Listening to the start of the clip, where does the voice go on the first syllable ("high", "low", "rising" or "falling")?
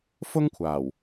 high